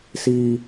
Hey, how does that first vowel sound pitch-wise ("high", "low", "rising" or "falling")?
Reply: high